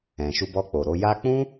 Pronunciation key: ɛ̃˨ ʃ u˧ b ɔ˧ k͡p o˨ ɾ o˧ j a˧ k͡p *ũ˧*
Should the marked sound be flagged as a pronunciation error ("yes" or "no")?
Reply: yes